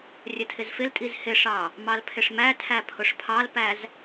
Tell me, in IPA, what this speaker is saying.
rʲ ə tʰ ɪ z f ɪ l tʼ i z h ɪ ʂ ɑ | m ɑ l pʰ ɪ ʂ m æ tʰ æ pʰ ʊ ʂ pʰ ɑ l p æ z

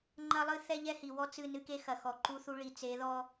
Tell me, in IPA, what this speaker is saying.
ŋ͡ǃ ɐ˦ lˠ ɨ˦ θ ɛ˦ ʎ ɛ˦ h i˨ w ɔ˦ t͡s ɨ˦˨ n ɨ˦ k e˦ x ɐ˨ x ɔ˨ ǃ u˦ θ u˦ ɭ i˨ t͡s e˨˦ ð ɔ˦

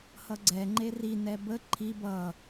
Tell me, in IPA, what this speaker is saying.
h ʌ ɡ͡ǀ ɛ ŋ͡ǃ e r i n ɛ b ə ǃʰ i b ʌ

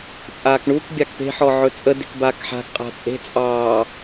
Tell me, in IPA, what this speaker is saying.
t͡sʼ aː k ɳ u k bʲ a k p e̤ ħ ɔ ʕ ɵ t͡sʼ ə d e̤ k b aː k ħ a̤ k qʼ a̤ t͡sʼ e̤ t͡sʼ ɑː

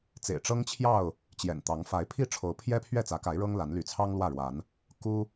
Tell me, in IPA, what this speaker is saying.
t͡s ḛ˨˩ ɪ̯ ʈ͡ʂ ɤ˦ ŋ t͡ɕʰ j ɑ˥˨ ʊ̯ | t͡ɕ j ɛ̰˨˩ n t̪ ɑ˨˦ ŋ f a˨˦ ɪ̯ pʰ i˦ ʈ͡ʂʰ o˨˦ ʊ̯ pʰ j ɛ˦ pʰ ɥ ɛ˥˨ t͡s ä˨˦ k a˨˦ ɪ̯ ɻ ɤ˦ ŋ l a˨˦ n l y˨˦ t͡sʰ ɑ˦ ŋ l w ä˥˨ ɻ w a˨˦ n | k u˦

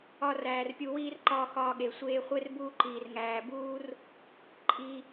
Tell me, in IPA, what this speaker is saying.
ɒ˦ r æː˧ r pʲ u˧ w iː˦ r ǃ ɒː˧ x ɒː˧ ɠ e˨ sʷ eː˧ χʷ e˦ r b uː˧ ǃ iː˨ r ŋ æː˨ b uː˦ r | ǃʼ i˧

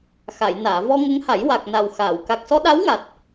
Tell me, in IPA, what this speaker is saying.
x a˨˩˨ j n aː˨˩˨ v ɔ˧ ŋ ə˧˥ ŋ h a˨˩˦ j w a˨˩ k̚ n a˨˩ w x aː˨˩˨ w k a˨˩ k̚ s ɔ˧ ɗ a˧˥ w ŋ a˨˩ t̚

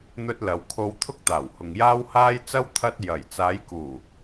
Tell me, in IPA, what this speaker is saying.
n̪ ɵ˧ t̚ l ɐ˨ w kʰ o˧ w t̪ʰ ʊ˥ k̚ t̪ aː˨˩ w h ʊ˨ ŋ j aː˥ w h aː˥ j t͡s ɐ˥ w t̪ʰ ɐ˧ t̚ j ɐ˨˩ j t͡s aː˨˧ j k uː˨˩

